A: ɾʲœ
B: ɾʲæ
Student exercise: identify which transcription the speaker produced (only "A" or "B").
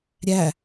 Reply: B